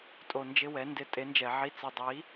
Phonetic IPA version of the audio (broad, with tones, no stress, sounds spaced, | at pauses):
tʼ o˧ n d͡ʒ ɪ˦ w ɛ˨˦ n d ɪ˧ tʼ e˨˦ n d͡ʒ ɛ˨ ʕ i˧ t͡s i˨ dˤ i˨˦